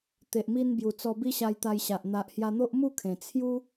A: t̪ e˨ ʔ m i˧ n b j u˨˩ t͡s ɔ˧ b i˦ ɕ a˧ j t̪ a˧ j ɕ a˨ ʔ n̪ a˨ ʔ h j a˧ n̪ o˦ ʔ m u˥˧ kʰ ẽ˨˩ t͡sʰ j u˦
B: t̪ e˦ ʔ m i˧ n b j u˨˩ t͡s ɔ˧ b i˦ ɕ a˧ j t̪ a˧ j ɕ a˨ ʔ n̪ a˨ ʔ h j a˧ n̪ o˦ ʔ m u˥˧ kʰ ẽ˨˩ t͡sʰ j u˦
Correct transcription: A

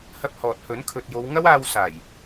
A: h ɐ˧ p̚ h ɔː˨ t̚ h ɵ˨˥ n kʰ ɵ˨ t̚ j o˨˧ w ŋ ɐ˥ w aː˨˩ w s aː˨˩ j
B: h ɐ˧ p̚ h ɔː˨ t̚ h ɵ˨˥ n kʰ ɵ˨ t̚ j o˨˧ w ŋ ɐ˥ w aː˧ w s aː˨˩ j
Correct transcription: B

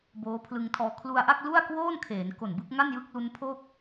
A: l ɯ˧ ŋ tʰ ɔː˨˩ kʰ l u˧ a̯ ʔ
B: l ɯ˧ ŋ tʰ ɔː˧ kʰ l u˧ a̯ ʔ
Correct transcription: B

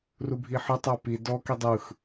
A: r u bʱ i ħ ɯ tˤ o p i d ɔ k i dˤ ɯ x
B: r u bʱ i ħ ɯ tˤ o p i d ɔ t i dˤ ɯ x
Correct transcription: A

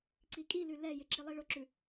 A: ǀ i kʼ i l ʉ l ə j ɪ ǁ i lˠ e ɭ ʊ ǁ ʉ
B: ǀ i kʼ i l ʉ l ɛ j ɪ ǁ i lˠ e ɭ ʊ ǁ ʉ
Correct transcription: B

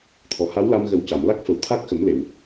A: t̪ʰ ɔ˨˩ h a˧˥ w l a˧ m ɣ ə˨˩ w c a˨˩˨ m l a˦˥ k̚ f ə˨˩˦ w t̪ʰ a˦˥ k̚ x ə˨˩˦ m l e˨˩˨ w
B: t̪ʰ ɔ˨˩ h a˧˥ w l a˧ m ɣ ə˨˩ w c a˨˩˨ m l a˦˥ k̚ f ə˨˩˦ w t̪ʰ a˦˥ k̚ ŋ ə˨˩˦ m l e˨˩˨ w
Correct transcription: A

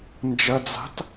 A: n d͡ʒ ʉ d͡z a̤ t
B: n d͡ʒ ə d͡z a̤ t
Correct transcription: B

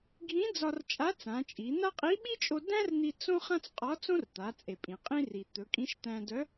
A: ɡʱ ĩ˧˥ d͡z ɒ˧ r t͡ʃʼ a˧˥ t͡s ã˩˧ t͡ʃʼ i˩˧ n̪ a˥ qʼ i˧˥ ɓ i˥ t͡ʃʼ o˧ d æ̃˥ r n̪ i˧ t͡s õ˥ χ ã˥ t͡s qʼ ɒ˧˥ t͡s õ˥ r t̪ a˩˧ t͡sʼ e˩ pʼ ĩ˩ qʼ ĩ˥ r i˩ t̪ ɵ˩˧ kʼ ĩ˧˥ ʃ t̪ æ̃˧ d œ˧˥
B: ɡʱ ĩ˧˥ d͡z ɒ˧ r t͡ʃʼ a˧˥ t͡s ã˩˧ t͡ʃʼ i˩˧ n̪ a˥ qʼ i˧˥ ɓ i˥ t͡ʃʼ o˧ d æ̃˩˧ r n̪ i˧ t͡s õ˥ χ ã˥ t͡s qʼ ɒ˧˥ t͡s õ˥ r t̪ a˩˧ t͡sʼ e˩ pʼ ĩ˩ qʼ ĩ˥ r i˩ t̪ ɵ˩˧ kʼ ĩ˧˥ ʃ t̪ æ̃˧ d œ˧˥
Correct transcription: A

